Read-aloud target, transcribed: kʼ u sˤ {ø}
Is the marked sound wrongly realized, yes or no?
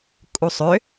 no